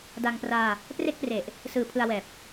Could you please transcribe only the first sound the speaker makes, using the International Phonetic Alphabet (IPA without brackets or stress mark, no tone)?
d